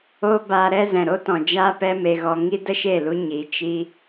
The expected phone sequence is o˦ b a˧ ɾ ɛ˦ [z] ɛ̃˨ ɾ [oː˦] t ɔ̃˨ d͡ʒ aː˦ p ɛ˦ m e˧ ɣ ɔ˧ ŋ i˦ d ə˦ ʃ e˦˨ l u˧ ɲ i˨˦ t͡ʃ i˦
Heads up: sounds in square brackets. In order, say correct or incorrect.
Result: correct, incorrect

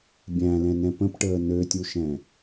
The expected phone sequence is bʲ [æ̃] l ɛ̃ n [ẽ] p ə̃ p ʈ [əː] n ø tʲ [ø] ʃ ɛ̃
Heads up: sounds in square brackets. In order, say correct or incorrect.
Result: correct, incorrect, correct, incorrect

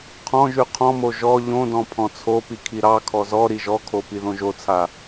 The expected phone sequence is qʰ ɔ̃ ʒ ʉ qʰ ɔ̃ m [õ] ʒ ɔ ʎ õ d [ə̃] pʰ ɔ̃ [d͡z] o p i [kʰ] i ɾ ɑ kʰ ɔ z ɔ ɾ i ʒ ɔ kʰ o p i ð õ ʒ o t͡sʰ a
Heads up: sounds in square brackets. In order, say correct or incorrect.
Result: incorrect, incorrect, incorrect, correct

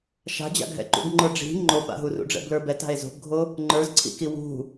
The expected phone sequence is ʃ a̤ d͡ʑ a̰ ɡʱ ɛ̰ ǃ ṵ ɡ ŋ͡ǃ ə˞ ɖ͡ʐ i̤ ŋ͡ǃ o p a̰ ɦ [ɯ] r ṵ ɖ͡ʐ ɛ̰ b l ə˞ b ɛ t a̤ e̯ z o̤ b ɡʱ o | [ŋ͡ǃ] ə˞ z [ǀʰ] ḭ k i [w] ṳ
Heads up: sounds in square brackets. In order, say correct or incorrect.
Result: incorrect, correct, correct, correct

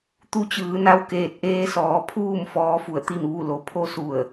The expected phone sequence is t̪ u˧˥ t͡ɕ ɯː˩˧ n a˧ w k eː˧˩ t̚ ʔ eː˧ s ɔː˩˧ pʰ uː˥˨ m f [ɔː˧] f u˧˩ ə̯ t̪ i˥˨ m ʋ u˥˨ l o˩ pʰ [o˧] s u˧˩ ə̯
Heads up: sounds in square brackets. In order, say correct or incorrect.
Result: incorrect, correct

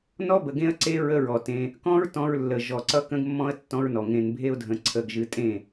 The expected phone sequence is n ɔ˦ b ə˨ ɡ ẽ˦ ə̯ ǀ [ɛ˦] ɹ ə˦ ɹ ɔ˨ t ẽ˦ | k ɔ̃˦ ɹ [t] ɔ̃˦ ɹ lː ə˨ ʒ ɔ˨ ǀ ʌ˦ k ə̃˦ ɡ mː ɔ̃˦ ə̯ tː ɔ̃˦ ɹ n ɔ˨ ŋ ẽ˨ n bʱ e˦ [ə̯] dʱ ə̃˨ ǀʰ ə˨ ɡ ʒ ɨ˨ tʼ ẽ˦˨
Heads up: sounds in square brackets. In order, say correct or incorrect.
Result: incorrect, correct, incorrect

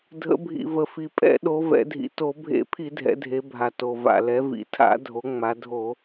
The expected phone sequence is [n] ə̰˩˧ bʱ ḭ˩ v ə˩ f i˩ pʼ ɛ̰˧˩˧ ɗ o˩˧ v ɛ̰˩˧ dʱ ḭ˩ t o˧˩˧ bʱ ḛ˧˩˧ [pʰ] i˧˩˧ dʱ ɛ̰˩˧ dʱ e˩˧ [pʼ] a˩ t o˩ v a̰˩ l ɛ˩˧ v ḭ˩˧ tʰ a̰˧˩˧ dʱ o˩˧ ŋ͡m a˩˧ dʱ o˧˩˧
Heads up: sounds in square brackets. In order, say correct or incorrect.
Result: incorrect, correct, incorrect

